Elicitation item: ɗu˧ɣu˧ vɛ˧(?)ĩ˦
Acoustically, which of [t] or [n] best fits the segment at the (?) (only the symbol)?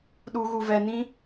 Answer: n